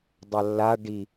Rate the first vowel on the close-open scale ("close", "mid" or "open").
open